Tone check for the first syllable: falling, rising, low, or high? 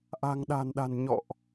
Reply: low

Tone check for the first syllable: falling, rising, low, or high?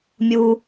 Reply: low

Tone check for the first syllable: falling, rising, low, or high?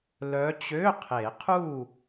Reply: rising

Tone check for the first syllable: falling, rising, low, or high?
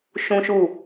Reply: high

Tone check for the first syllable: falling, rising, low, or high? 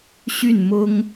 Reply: falling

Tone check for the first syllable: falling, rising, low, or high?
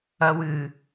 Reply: low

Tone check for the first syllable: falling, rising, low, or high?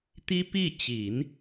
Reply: high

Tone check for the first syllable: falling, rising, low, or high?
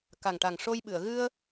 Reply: low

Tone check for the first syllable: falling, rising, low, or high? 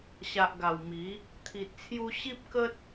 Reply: low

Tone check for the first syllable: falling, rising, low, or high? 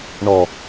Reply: low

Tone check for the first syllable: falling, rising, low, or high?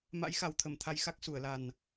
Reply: rising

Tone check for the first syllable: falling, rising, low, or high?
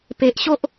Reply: low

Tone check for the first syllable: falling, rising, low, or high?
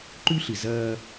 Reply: high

